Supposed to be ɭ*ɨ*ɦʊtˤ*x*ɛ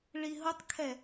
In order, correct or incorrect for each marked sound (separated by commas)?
incorrect, incorrect